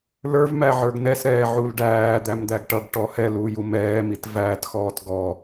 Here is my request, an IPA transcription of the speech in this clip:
lə˞vmæʕə˞ɡ nɛsɾɛːʕul ɖæːd̪æmd̪æɡ ʈʌɡʈɔ hɛluːju mɛːmit væːtxɔːt ɡɔ

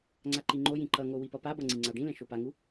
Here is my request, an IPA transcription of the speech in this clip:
ŋ͡ǀaǃiŋ͡ǃojĩ ǃʌŋo wipʌpabʌ ŋ͡ǀĩŋ͡ǀaɖĩlɛ̃ ʃopaŋu

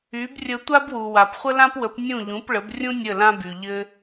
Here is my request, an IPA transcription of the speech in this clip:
y˩˥brʲə˧ tʷa˥bwu˩wa˩p χʷə˥lã˥pwə˩˥p nʲũ˥˩ʎũ˩˥pɭə˩˥b rʲũ˥ nʲə˥˩lã˥by˩ ʎɘ˧

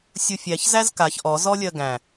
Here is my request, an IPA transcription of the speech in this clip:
sʲufʲæç zæzkaç ʔɔ zɔlʲɜɡæ̃

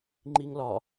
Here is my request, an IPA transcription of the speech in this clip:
ŋ͡ǃiŋlɒ

